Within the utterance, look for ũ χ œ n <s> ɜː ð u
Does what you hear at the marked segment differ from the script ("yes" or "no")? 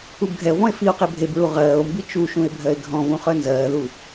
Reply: yes